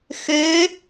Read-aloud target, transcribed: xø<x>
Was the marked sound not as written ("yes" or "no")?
yes